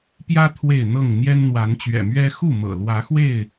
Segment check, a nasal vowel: absent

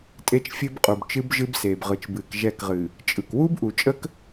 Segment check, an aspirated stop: absent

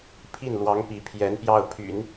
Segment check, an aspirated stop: present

